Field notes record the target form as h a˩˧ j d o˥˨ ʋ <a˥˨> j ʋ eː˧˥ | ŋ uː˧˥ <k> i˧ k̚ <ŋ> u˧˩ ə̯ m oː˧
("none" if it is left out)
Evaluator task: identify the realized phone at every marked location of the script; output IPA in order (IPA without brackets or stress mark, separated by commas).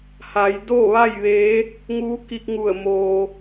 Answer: a˥˨, k, ŋ